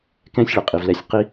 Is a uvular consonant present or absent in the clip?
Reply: present